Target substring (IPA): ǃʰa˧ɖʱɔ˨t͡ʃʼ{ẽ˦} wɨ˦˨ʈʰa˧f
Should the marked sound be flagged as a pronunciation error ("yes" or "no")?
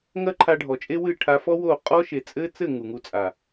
yes